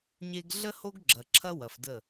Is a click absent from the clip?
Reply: no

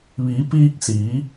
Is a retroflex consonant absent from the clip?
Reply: yes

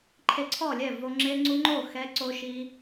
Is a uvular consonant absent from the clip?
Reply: yes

